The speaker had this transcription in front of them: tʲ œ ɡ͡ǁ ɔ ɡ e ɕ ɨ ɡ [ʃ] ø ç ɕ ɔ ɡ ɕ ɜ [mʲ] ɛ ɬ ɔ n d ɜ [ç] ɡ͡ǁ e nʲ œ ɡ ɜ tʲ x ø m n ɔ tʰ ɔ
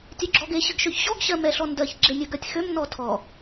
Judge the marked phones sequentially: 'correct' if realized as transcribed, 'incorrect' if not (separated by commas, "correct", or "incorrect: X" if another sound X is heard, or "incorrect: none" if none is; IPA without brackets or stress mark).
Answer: correct, incorrect: m, correct